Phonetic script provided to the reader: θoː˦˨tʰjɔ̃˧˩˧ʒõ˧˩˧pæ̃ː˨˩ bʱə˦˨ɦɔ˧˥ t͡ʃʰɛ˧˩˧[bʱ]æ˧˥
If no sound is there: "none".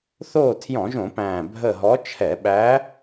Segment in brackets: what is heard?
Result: ɓ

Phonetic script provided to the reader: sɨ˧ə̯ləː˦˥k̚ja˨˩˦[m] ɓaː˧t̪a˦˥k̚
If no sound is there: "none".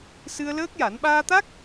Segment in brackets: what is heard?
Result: n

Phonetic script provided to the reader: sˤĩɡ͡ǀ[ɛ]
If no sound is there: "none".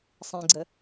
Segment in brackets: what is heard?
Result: ə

